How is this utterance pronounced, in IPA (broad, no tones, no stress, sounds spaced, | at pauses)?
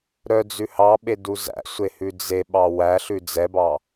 ɾ œ d͡z ʉ h ɑ ɓ e d u z æ̰ sʷ e h ʉ d͡z e ɓ ɑ w æ ɬ ʉ d͡z ɛ b ɑ